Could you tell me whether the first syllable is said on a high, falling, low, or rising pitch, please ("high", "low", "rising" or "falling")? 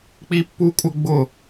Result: high